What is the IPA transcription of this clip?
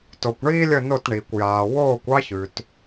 t o˩ kʷ ɳ iː˥ lʲ ə˥˧ n o˥˧ t ɳ iː˩ kʷ j aː˩ w oː˥˧ kʷ ɑ˥ ç ʉ˩ t

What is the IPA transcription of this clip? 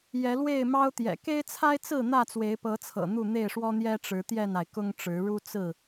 j ɛ˨˦ l w e˥˨ ɪ̯ m ɑ˦ ʊ̯ t̪ j ɛ̰˨˩ k e˦ ɪ̯ t͡sʰ a˦ ɪ̯ t͡s ɹ̩˥˨ n̪ ä˥˨ t͡s w e˨˦ ɪ̯ p ɤ˨˦ t͡sʰ ɤ̰˨˩ n̪ u˥˨ n̪ e˥˨ ɪ̯ ʂ w ɔ˦ n̪ j ɛ˦ ʈ͡ʂ ɻ̩˨˦ t̪ j ɛ˥˨ n a˩ ɪ̯ k ʊ˦ ŋ ʈ͡ʂ ɻ̩˨˦ ɻ u˦ t͡s ɹ̩˥˨

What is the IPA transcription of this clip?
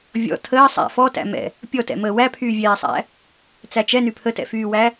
vʲ ɔ̰ tʰ əː sˤ æ̰ f ɔ t æ̰ m ɛ̰ | pʲ ɔ t ɛ̰ m əː w æ pʰ yː vʲ ɛː sˤ æ̰ | t͡s æ t͡ʃ ɛ n y pʰ ə t ɛ̰ f yː w æ

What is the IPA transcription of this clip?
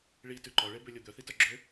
ɭ i t ʉ ǃ ɔ ɭ e b ø lʲ o d̪ œ θ i t œ ɡ͡ǁ ø

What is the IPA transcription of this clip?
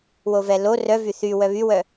w o v ɛ l o r œ v y θ y w œ β y w œ

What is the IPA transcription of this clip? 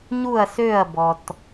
ɲ u˦˨ ɐ̯ s ø˦˨ ɐ̯ b ɔ˨ t

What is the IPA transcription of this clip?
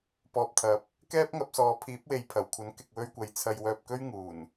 p ɔː˧ p̚ t̪ʰ ɐ˨˥ p̚ | k ɛː˥ p̚ ŋ ɐ˧ p̚ s ɔː˨˧ pʰ iː˨˥ p̚ w e˨ j pʰ ɐ˨˩ w kʷʰ ɐ˨˥ n k ɪ˨ k̚ w ɵ˧ ɥ kʷ ɐ˨ j t͡sʰ ɐ˧ j w œː˧ p̚ k ɵ˥ ɥ ŋ uː˨˩ n

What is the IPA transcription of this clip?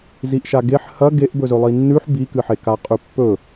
z i ʔ ʃ a ɡ e ħ h ɐ ɡ e ʔ b ɵ z ɵ lˠ i nː ʉ ħ b i k ɨ ħ e k a qʼ ʉ pː ɵ

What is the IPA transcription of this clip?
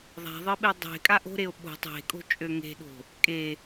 ðˤ a̤ ðˤ ɘ ɓ e dˤ e̤ kʼ a ʔ o̤ ɾ e o̯ ɓ o̤ tˤ e̤ kʼ o̤ t͡ʃʼ ø ŋ e̤ ɗ o̤ | kʼ e

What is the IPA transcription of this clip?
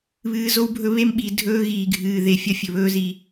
β ɨː˨ z o˦ w bʱ ɵ˦ β e˦ m ɓ i˨ dʱ ɵː˦ ɣ iː˨ ɡʱ ɨː˨ ð e˨ fʲ ɐ˦ fʲ ɵ˨ β ɵː˦ z i˨˦

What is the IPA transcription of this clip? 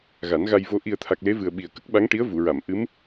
ɣ a˨˩˦ n ɣ a˧ j v o˧ ʔ i˨˩ ə̯ t̪ʰ a˨˩ k̚ l e˧˥ v ɨ˨˩ ə̯ ɓ i˨˩ ə̯ k ə˦˥ k̚ ɓ a˧˥ ŋ ʈ i˧˥ ə̯ v u˨˩˨ ɹ a˨˩˨ m ʔ ɨ˧˥ m

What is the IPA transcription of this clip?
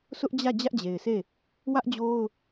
s ʊ˦ ʔ d͡ʑ ä˦˨ d͡ʑ ä˦ ʔ d͡ʑ e˨ ɪ̯ sʰ e˦˨ | w ä˦ ʔ d͡ʑ o˦ ʊ̯

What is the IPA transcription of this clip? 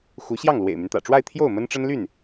x u˧˥ ɕ j ɑ˥˩ ŋ l w ḛ˨˩ ɪ̯ m y˦ n t̪ ä̰˨˩ ʈ͡ʂ w a˥˧ ɪ̯ t̪ʰ j o˥˩ ʊ̯ m ə˥ n ʈ͡ʂ ə˥ n l y˥˩ n

